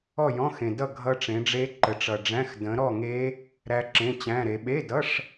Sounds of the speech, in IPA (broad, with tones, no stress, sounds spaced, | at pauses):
ɔ˥˨ j ɔ̃˧˥˧ x ẽ˨ d ʌ˥˨ ɡʱ ʌ˦˥ ʈ͡ʂ ẽ˨˦ ɖ͡ʐ e˦˥ ǃ ə˨˦ ʈ͡ʂ ʌ˨ ɖ͡ʐ æ̃˧˥˧ x d ə̃˨˦ ɾ ɔ˥˨ ŋ e˦˥ | ɾ æ˦˥ ǁ ẽ˧˥˧ t͡ɕ æ̃˧˥˧ ɾ e˨˦ ɓ e˧˥˧ d ʌ˧˥˧ ʂ